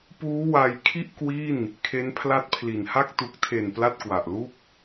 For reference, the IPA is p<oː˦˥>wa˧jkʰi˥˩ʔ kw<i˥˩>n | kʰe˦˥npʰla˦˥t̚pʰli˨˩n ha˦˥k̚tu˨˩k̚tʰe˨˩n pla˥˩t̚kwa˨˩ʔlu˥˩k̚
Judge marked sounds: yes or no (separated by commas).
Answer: no, yes